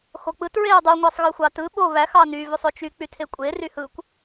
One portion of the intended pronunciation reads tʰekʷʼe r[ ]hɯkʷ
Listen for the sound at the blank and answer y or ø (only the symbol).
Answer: y